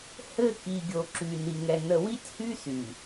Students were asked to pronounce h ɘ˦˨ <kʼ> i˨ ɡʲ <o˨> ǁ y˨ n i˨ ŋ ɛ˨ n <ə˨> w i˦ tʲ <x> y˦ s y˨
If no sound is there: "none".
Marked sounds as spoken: k, o˨, ə˨, h

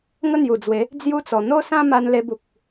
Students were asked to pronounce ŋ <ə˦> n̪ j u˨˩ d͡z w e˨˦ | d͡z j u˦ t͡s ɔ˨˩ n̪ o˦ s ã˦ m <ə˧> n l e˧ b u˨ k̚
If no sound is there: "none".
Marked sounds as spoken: ə˦, a˧

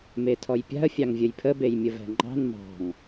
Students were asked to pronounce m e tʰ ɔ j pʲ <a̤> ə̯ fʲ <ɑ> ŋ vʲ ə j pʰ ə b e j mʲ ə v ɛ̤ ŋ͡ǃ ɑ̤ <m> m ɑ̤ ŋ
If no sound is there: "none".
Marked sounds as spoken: a̤, ɑ, n

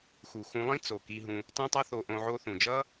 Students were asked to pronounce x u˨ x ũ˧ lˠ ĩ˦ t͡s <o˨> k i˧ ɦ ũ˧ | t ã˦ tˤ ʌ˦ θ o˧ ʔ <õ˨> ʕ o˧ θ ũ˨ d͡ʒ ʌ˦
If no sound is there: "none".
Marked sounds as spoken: o˨, õ˧

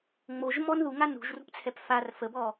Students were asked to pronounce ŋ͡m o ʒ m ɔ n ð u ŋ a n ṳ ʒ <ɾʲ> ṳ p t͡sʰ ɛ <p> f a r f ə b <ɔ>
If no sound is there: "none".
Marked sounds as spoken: r, p, ɔ

